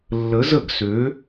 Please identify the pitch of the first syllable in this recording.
rising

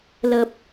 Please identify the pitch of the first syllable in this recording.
low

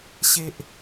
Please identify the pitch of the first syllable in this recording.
high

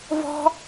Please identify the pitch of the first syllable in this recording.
high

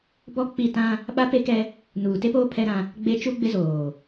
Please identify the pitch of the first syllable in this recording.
high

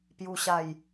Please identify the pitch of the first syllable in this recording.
low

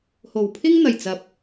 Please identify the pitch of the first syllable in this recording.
low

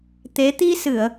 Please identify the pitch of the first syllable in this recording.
rising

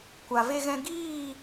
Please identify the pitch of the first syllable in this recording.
low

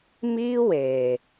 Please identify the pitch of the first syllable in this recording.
high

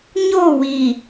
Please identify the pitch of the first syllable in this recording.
falling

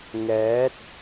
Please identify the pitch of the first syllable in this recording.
rising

